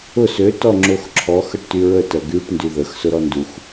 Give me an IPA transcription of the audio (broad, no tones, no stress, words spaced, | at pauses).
ʊ sø tɔŋ͡ǁoxǁʰɔx əʈtyɹə tɜɡyʈ ndyðəx sʊɾɔndux